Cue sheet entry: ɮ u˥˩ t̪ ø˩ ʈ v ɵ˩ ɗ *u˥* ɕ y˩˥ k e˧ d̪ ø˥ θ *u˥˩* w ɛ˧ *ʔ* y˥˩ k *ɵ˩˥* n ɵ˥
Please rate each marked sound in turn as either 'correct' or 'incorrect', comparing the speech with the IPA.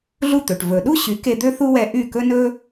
correct, incorrect: u˥, correct, incorrect: ɵ˥

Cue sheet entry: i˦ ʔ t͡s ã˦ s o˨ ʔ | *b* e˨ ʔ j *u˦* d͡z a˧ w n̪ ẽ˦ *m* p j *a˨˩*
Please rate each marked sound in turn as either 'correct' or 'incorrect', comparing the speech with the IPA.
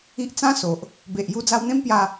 correct, incorrect: u˧, correct, incorrect: a˧

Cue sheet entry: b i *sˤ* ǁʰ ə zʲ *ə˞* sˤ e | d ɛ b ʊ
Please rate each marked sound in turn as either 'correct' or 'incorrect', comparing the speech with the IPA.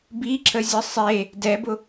incorrect: none, incorrect: ə

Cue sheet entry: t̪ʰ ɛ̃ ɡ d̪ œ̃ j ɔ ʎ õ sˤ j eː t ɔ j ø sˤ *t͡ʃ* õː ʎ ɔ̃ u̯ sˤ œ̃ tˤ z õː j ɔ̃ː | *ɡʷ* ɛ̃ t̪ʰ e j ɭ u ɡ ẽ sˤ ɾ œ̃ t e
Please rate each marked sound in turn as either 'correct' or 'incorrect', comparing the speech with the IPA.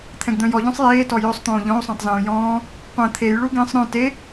incorrect: t̪, incorrect: qʷ

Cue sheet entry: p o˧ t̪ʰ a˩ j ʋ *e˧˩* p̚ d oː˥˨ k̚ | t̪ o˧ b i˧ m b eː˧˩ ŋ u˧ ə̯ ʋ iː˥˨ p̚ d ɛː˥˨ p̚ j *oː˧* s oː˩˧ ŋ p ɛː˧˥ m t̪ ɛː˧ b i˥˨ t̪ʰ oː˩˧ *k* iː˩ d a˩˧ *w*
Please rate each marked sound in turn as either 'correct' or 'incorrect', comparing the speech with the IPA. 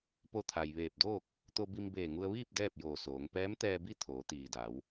incorrect: eː˧˩, incorrect: oː˧˩, incorrect: t̪, correct

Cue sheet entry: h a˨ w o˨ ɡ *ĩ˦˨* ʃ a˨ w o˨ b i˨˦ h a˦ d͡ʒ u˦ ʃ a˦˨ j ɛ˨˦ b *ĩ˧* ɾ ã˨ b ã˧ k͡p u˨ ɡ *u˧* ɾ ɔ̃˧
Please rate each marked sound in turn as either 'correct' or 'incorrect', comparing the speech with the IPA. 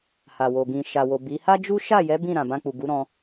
incorrect: ĩ˨, incorrect: ĩ˦˨, incorrect: u˨˦

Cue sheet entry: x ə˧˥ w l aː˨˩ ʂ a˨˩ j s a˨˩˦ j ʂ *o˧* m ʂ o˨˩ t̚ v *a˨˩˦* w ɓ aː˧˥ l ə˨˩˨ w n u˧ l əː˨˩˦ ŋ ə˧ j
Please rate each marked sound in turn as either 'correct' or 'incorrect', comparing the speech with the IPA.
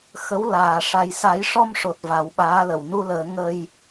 incorrect: ɔ˧, correct

